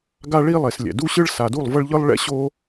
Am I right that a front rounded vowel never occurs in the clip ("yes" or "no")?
yes